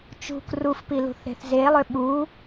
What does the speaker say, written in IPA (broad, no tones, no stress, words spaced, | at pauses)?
t͡ʃṳ krufpi lṳθɾe̤θzelˠø ɓu